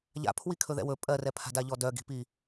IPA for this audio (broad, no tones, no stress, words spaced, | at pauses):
ʎa̰ pʰwikʰɵðɛ̰wɵ pʼɜrɛpʰa̤da ʎɔdœɡi̤pi